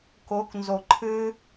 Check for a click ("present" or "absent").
present